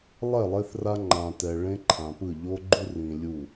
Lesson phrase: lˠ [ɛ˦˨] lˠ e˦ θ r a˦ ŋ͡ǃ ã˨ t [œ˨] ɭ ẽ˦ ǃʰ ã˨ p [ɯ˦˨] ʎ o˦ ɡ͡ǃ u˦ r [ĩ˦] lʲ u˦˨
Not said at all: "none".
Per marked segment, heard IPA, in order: ɛ˦˨, ɛ˨, ɯ˦˨, ĩ˨

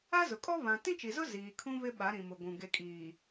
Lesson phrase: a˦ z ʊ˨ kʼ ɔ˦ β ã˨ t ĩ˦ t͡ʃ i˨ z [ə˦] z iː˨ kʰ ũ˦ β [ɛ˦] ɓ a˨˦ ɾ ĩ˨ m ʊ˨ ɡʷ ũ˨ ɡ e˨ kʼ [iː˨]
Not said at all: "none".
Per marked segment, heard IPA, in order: ʊ˦, ɪ˦, iː˨

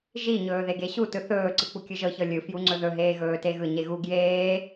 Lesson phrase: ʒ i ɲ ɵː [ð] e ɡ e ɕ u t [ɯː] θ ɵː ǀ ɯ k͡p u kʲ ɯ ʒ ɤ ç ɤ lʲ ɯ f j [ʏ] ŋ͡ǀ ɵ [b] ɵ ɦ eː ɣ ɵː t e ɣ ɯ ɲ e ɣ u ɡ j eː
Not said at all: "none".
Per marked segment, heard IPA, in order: ð, ɯ, u, ð

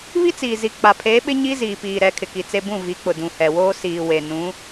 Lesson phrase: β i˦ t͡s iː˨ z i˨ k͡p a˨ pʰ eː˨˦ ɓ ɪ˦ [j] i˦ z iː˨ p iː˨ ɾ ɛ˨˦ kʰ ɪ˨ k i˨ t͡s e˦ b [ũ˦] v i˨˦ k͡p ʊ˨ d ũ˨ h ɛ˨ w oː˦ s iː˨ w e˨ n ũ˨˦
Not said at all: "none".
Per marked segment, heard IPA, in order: ɲ, ũ˦˨

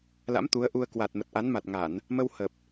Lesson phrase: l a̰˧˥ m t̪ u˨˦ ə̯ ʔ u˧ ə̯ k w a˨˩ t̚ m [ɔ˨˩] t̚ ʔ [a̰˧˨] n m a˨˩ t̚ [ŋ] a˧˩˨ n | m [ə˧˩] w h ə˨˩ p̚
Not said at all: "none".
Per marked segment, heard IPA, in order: ə˨˩, a˨˦, ŋ, ə˧

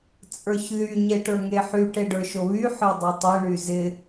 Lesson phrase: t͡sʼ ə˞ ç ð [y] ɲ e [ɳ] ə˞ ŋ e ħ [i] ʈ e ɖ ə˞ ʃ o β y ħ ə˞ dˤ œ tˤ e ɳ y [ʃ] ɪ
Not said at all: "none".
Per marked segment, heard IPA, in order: y, ʈ, y, z

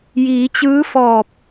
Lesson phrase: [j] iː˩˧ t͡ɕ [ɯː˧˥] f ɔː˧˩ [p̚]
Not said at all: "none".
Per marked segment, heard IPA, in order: j, ɯː˧˥, p̚

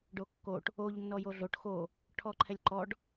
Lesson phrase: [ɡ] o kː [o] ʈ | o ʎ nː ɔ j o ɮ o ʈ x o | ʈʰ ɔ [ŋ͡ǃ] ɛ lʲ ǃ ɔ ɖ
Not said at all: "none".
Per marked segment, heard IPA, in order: ɖ, o, ǃʰ

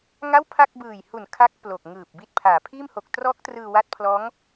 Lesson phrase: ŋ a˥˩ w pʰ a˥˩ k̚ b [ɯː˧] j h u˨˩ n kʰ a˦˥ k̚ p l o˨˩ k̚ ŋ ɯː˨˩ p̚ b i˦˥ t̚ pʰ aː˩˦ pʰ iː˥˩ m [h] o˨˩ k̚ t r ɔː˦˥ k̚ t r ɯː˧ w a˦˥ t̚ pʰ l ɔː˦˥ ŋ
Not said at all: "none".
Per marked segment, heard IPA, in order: ɯː˨˩, h

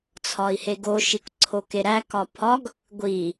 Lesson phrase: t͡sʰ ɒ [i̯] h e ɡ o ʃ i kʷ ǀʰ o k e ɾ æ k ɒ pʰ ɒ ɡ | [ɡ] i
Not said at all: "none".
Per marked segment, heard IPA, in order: i̯, ɡʷ

